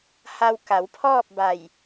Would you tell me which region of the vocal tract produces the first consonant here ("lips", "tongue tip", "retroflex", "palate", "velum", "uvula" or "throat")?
throat